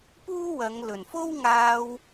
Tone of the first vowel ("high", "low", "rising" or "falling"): high